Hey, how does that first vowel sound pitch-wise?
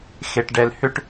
low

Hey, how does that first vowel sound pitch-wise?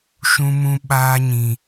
high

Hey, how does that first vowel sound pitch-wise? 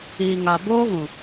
low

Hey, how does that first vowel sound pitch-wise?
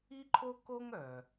high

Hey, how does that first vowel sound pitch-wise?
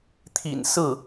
low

